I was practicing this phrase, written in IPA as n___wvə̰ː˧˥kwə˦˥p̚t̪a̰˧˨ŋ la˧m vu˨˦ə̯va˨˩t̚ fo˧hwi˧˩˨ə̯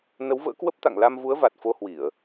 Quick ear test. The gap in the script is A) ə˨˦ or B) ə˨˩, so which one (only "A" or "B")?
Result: A